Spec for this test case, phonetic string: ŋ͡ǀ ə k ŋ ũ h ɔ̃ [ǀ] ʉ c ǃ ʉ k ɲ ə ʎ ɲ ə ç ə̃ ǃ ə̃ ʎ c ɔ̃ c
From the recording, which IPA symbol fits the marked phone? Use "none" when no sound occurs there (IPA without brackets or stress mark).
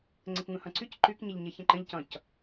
ǀ